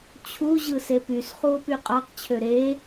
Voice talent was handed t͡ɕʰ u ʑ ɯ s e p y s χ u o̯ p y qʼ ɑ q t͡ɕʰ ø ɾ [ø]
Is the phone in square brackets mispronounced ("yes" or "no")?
yes